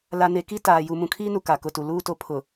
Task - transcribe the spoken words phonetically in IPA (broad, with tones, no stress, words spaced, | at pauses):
la˨ne˨ ki˦ taː˨ ju˨mũ˨kʰiː˦nu˨ ka˨kʊ˨tu˨ luː˦˨to˦ pʰʊ˨